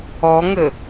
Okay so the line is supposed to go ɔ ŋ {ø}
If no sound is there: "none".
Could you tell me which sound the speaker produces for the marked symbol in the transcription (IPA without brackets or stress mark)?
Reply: ɘ